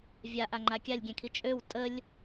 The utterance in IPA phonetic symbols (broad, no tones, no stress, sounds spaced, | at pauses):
vʲ a ʔ a ŋ͡ǃ a kʲ a lʲ ɡʲ ɛ̃ kʰ i t͡ʃʼ ø w tʼ ə lʲ